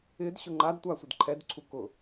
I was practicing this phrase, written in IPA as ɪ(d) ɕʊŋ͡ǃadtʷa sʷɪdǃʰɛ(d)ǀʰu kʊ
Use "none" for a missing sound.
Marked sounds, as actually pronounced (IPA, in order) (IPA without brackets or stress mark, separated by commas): d, d